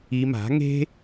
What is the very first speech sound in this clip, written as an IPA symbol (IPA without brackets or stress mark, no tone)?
i